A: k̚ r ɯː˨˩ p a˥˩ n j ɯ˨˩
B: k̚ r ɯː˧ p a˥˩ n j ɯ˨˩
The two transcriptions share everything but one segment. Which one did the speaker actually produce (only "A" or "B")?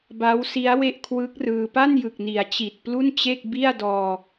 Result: B